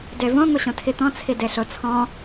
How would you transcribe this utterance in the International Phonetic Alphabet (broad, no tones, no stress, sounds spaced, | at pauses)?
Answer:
d e v õ ŋʷ i ɕ õ tʰ i t̪ ɔ̃ t͡sʰ i d e ɬ o t͡sʰ ɔ̃